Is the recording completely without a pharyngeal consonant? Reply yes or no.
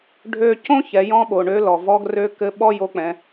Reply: yes